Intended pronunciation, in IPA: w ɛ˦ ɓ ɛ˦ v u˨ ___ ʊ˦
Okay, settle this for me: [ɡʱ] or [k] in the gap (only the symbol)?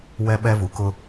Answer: k